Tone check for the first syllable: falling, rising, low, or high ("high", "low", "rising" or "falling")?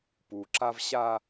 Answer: low